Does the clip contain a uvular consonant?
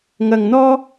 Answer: no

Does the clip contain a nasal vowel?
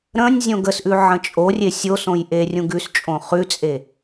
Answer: yes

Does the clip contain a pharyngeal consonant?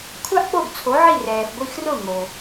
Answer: yes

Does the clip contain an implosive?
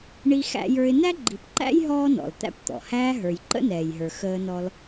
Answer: no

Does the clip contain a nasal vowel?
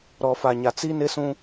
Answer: yes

